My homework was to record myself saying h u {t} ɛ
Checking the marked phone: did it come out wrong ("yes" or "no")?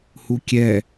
yes